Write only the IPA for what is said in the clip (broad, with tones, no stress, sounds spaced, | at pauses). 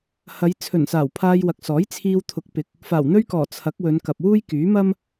h ɐ˨˧ j t͡sʰ ɵ˨˩ n s aː˨˩ w pʰ aː˧ j w ɐ˨ k̚ s ɔː˨˥ j t͡sʰ iː˧ w t̪ʰ ʊ˨˥ k̚ p ɪ˨˥ k̚ | f aː˨˩ w n̪ ɵ˥ ɥ k ɔː˨˩ t͡sʰ ɐ˨˥ k̚ w ɵ˨˧ n k ɐ˨ p̚ w uː˥ j k yː˨˥ m ɐ˥ m